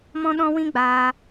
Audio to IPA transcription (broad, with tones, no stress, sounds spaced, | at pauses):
m ɔ̃˧ ɗ ɔ̃˧ w ĩ˦ ɡ͡b aː˧